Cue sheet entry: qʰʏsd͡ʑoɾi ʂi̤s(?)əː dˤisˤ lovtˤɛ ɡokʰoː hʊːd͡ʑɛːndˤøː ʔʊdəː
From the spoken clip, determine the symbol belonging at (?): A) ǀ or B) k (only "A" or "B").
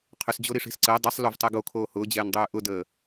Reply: A